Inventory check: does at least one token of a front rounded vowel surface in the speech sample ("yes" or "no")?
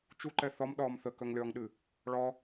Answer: yes